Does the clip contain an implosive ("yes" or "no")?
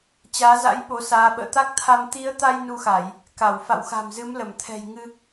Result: yes